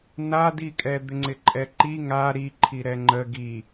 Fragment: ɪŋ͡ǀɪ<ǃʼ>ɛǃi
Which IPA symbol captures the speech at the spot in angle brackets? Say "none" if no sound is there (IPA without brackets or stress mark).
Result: ǃʼ